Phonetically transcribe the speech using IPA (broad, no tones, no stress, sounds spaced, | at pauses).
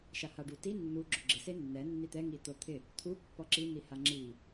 ʃ a h a ɖ u t i nː u ɡ͡ǁ ʊ ɡ͡ǁ ɪ s e nː ɛ nː i t̪ ɛ ŋ i t̪ o t̪ʰ ɪ | t̪ʰ u pː ɔ ǁ i n̪ i h a ŋ͡ǁ i